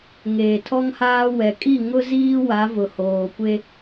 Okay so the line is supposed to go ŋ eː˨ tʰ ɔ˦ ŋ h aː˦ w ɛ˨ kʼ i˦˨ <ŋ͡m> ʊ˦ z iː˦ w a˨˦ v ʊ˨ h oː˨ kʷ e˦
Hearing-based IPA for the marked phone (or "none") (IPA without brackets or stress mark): ŋ